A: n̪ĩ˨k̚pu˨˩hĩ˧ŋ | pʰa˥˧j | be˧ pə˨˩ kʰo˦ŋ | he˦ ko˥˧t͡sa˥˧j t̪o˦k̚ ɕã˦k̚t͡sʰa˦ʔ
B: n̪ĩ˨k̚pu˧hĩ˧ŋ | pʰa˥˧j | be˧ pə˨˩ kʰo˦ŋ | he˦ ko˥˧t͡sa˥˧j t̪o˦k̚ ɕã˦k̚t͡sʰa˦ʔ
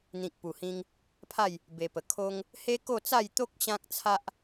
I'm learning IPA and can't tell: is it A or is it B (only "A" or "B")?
A